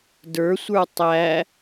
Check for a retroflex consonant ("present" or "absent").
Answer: absent